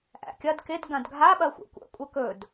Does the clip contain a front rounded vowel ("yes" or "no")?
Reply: no